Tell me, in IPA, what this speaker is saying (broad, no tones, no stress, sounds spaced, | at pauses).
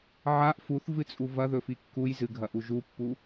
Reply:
ʕ a ʔ f u θ v ɨ t͡sʼ u v ɐ ð ɵ f i kː u j z ɨ ɡʱ ɐ ʔ u ʒ u pː u